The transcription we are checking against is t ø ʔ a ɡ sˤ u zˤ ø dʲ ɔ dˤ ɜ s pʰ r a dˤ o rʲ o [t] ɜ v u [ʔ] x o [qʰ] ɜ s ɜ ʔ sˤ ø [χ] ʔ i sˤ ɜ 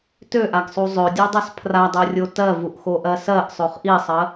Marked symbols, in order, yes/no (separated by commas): yes, yes, no, yes